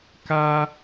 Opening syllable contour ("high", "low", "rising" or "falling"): high